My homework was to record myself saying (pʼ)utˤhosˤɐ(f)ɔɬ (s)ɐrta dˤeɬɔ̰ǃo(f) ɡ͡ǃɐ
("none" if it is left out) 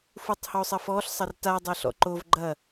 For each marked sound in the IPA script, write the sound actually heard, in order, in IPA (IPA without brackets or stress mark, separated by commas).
f, f, sˤ, v